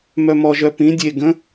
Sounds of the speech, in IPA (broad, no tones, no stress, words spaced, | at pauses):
mœmɔʒœ pĩ dʲe ɡə̃